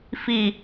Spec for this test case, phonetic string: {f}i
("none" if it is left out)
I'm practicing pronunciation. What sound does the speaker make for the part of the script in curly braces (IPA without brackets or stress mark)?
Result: f